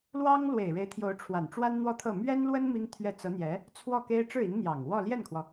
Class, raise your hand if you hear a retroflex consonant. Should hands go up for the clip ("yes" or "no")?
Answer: yes